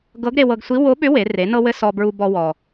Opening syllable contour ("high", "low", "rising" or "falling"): rising